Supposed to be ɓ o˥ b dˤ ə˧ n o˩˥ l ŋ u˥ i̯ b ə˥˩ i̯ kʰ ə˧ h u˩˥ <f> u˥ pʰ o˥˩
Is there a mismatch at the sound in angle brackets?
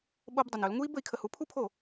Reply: yes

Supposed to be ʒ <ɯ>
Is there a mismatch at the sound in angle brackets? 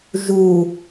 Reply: yes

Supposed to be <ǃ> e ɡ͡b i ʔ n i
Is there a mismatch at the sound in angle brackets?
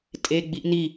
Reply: yes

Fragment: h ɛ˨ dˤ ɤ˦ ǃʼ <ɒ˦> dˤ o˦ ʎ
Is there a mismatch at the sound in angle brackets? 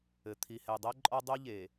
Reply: no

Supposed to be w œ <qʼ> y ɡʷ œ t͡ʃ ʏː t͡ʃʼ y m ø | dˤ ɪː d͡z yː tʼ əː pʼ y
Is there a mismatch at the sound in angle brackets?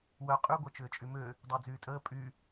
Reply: no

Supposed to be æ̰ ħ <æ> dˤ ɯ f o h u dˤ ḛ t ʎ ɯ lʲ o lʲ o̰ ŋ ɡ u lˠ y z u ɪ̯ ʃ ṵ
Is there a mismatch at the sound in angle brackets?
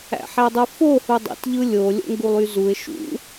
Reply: no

